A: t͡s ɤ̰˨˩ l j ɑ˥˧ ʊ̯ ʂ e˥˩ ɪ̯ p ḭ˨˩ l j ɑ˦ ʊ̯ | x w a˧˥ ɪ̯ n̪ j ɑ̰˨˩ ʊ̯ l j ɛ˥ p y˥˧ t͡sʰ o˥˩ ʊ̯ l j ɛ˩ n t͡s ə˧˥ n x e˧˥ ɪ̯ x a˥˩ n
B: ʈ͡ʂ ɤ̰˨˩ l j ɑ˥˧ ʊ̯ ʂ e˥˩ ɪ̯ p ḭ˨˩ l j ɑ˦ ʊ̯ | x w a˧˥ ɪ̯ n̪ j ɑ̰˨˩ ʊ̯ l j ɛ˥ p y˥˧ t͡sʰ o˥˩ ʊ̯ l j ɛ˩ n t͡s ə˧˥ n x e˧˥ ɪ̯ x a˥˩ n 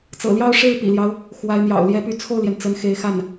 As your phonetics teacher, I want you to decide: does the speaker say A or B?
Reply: A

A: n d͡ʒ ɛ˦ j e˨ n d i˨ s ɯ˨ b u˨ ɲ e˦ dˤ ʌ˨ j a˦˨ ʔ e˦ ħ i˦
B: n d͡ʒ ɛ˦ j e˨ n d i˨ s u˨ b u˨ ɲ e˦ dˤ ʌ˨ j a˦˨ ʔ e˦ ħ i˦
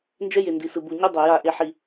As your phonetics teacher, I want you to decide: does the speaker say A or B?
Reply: A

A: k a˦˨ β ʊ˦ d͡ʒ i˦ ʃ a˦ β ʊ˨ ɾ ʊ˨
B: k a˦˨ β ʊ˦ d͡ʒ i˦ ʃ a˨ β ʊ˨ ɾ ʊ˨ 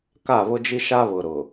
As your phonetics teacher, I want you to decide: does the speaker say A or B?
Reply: A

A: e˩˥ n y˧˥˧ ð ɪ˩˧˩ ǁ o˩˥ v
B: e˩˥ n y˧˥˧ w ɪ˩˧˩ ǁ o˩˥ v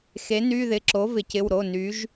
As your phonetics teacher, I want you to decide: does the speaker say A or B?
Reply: A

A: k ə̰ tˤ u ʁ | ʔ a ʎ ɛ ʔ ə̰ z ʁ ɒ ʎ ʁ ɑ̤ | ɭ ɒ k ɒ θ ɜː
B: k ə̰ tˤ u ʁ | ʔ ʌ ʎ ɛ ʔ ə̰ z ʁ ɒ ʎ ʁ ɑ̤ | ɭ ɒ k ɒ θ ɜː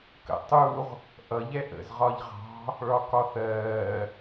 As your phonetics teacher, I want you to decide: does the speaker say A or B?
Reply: B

